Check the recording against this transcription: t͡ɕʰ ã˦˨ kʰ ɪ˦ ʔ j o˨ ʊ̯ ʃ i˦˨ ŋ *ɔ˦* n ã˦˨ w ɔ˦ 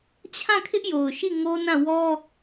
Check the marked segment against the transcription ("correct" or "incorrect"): incorrect